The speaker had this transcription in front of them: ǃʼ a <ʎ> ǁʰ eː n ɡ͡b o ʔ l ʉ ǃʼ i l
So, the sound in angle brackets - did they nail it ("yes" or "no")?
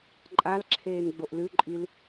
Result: no